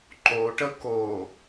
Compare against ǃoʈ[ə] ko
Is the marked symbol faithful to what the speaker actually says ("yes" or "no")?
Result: yes